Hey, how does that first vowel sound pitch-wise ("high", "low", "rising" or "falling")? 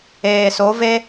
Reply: low